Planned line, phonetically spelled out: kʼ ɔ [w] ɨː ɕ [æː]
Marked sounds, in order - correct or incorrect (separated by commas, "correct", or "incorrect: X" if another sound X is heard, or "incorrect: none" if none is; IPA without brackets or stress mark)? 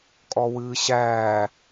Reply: correct, correct